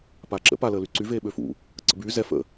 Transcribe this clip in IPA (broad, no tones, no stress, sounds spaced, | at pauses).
p aː ǁ ə̰ p a l əː l y ǀ y v eː ɓ ø f ṵ | ǀ ə̰ b yː z ɛ f ə̰